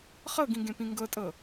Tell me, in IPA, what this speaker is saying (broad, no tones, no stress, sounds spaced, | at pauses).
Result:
χ ɤ ɡ ĩ ɡ ẽ p ĩ ŋ ɡ ɤ tʼ ɤ